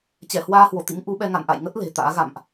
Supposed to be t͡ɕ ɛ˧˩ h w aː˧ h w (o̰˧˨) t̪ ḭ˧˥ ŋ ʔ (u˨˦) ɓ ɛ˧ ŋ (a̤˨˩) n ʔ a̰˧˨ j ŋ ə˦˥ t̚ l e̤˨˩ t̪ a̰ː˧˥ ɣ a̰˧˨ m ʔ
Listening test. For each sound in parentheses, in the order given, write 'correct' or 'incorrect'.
incorrect: o˧˩, correct, incorrect: a̰˧˨

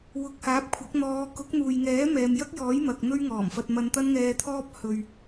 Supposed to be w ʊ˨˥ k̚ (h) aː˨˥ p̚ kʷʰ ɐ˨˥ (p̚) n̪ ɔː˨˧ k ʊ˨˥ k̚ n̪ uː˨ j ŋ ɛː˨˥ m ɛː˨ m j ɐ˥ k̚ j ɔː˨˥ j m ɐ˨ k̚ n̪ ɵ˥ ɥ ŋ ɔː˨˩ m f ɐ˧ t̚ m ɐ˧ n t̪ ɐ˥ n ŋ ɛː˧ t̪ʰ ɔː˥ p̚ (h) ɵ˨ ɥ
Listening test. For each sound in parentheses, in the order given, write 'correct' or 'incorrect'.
correct, incorrect: k̚, correct

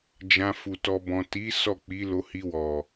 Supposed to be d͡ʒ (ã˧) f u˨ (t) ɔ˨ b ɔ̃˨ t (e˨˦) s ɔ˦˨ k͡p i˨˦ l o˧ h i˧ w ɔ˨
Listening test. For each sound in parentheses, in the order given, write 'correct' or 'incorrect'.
correct, correct, incorrect: i˨˦

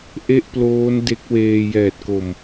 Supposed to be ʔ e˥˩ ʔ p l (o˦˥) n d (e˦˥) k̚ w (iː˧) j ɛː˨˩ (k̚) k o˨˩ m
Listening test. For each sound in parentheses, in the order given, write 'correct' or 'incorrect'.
incorrect: oː˦˥, correct, incorrect: eː˧, incorrect: t̚

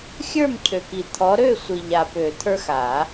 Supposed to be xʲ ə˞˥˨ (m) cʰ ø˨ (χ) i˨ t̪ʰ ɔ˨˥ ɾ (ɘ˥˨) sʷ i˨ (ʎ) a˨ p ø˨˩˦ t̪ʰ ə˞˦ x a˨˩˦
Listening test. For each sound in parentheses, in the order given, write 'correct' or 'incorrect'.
correct, incorrect: k, incorrect: ø˥˨, correct

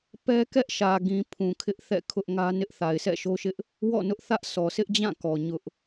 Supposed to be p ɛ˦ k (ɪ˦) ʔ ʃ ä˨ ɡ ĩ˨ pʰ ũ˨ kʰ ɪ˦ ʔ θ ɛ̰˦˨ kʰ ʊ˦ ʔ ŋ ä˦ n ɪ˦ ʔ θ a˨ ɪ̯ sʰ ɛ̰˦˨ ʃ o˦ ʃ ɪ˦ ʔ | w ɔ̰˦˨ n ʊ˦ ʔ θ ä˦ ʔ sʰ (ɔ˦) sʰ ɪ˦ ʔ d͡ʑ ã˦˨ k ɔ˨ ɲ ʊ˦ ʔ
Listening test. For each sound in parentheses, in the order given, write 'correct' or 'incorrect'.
incorrect: ɛ˦, incorrect: ɔ˨

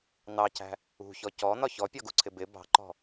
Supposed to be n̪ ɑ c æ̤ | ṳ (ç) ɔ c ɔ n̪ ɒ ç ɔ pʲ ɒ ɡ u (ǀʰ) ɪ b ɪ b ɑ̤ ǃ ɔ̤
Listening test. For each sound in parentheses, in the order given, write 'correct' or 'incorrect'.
correct, correct

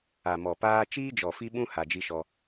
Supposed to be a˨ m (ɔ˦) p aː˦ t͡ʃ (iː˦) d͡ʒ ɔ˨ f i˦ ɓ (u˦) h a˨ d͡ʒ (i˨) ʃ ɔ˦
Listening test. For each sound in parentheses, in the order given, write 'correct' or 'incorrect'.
incorrect: ɔ˨, correct, incorrect: ũ˦, incorrect: i˦

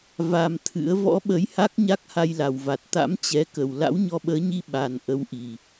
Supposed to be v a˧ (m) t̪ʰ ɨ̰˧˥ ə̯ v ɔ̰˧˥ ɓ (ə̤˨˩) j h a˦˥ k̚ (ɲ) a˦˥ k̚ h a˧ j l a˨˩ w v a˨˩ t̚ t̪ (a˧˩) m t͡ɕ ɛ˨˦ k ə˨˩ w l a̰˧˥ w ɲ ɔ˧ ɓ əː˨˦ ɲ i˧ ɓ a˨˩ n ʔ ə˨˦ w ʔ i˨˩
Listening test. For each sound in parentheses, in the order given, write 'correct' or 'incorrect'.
correct, incorrect: ə˨˦, correct, incorrect: a̰˧˥

